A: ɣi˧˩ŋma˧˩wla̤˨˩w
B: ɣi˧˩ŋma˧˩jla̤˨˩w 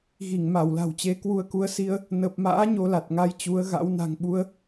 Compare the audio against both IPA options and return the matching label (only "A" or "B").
A